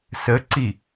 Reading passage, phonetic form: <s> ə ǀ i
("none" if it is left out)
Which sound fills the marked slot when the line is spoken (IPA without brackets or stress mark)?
s